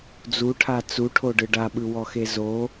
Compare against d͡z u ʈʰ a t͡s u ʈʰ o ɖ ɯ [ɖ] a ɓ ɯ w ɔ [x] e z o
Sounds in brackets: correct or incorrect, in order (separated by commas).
correct, correct